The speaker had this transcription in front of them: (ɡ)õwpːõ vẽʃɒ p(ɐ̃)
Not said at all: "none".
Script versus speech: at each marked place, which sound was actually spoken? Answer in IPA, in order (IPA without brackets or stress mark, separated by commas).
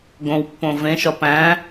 ɡ, æ̃